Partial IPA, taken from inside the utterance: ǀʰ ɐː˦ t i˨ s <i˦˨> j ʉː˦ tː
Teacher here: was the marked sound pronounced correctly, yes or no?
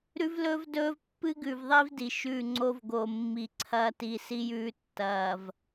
no